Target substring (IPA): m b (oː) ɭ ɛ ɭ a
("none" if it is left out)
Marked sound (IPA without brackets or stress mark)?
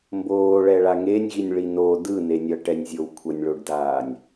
oː